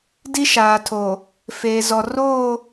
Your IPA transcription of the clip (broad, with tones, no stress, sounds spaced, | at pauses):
d i˦ ʃ aː˨ tʰ o˨ | f eː˨ z ɔ˨ r oː˦˨